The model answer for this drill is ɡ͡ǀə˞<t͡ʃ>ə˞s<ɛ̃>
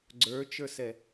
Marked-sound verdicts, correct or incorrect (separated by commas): correct, incorrect